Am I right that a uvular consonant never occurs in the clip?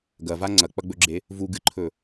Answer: yes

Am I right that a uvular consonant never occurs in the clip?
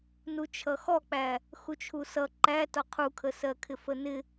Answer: no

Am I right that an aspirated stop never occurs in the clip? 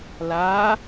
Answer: yes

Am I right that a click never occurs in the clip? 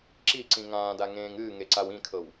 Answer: no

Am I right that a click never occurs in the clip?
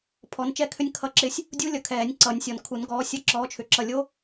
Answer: no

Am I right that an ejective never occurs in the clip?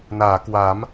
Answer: yes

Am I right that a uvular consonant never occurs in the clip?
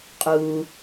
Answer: no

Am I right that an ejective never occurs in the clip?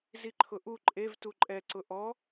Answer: no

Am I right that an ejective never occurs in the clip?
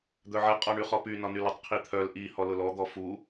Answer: no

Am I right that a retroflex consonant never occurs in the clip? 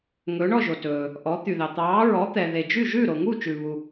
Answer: no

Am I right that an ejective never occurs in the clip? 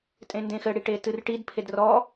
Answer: no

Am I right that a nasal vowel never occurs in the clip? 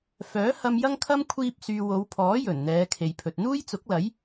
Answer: yes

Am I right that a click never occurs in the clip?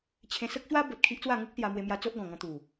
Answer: yes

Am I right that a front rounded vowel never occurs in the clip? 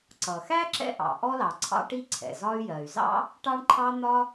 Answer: no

